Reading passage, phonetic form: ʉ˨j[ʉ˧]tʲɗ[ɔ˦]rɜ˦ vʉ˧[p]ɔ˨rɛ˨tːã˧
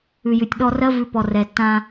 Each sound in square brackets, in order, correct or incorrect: incorrect, incorrect, correct

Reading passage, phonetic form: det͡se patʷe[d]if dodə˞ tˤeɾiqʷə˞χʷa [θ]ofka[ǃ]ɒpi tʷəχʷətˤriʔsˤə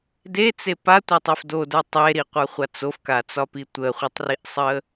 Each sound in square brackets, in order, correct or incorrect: incorrect, incorrect, incorrect

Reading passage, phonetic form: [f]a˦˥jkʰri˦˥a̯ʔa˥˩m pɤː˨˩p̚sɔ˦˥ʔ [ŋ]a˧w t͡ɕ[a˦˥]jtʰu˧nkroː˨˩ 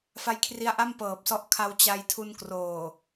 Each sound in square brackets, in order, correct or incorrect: correct, incorrect, incorrect

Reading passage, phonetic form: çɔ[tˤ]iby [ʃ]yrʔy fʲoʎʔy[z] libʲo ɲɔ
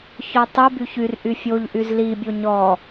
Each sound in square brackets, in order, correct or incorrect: correct, incorrect, correct

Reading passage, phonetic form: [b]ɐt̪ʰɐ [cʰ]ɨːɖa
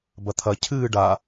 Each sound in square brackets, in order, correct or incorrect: correct, correct

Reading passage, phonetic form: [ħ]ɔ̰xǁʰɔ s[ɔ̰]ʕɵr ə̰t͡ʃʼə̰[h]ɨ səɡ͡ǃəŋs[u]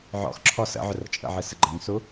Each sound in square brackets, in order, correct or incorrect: incorrect, incorrect, incorrect, correct

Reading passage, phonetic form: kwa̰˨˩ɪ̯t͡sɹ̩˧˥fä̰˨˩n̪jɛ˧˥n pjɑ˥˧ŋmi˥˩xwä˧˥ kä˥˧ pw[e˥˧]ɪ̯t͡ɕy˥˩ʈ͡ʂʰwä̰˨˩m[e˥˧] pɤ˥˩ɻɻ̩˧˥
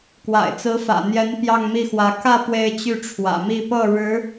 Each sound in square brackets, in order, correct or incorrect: correct, incorrect

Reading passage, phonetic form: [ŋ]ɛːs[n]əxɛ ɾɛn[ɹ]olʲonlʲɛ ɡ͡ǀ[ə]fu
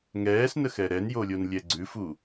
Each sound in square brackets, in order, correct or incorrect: correct, correct, incorrect, incorrect

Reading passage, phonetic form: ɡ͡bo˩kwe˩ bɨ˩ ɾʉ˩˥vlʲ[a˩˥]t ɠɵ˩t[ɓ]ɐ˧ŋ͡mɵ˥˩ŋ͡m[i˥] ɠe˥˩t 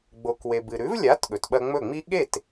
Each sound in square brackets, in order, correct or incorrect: correct, correct, correct

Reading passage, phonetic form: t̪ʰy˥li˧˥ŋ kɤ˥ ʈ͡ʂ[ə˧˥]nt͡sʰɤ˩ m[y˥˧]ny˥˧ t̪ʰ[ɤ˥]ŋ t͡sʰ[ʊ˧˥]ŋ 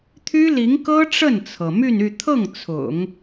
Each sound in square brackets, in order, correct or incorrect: incorrect, correct, incorrect, incorrect

